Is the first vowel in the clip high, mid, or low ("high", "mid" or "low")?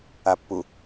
low